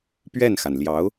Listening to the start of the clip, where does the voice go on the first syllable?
falling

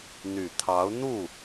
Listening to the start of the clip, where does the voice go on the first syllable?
low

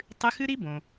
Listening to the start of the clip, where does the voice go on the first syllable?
high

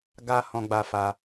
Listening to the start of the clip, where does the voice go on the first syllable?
high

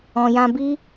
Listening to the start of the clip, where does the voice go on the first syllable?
low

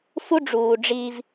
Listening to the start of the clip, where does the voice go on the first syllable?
high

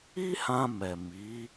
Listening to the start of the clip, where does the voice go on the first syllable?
high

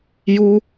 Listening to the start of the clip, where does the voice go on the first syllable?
high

